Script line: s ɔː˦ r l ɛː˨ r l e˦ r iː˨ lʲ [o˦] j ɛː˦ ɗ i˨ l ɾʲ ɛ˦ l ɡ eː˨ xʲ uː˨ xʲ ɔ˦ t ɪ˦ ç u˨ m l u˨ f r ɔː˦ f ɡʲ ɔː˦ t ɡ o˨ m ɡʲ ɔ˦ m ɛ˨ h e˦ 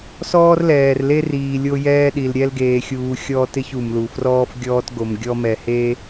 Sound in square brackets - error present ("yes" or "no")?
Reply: no